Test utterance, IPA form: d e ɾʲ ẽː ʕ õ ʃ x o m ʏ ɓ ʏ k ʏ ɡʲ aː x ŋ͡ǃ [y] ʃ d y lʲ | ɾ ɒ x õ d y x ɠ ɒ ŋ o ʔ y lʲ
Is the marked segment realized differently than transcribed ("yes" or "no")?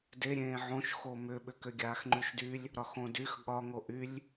no